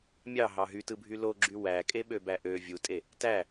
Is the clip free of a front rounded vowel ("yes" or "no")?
no